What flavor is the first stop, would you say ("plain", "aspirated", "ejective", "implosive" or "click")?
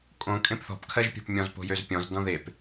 ejective